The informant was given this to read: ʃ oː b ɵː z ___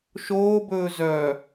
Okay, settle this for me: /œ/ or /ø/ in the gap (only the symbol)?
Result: œ